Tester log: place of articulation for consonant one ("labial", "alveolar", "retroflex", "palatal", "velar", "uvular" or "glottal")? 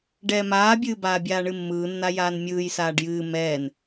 retroflex